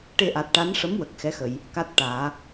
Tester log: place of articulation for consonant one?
retroflex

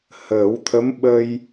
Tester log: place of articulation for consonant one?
glottal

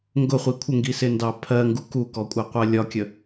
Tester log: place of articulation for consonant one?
velar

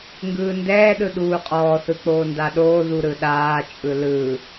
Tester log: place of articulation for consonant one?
velar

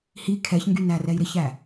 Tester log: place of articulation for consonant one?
glottal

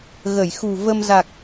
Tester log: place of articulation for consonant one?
velar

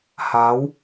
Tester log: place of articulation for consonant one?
glottal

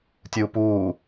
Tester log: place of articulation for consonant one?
alveolar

